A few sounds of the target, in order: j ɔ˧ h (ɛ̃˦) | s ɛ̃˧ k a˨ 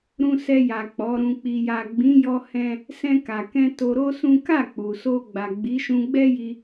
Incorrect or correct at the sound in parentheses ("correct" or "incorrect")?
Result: correct